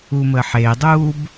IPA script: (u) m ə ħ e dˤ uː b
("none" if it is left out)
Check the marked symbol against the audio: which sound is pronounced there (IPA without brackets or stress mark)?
u